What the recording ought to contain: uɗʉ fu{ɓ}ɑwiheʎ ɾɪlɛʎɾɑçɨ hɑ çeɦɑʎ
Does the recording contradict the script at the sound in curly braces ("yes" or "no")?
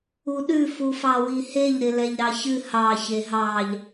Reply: yes